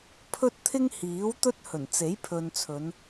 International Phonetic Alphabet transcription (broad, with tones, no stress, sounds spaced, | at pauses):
pʰ ɵ˥ t̚ t̪ʰ ɪ˥ ŋ h iː˨˥ w t̪ ɵ˥ t̚ h ɵ˨˩ n t͡s e˨˥ j pʰ ɵ˨ n t͡sʰ ɵ˨˧ n